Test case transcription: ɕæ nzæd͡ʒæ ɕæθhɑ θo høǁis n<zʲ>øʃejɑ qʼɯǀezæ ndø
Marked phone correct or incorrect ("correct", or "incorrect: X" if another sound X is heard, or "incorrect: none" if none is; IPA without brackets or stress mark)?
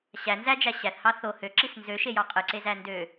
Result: incorrect: z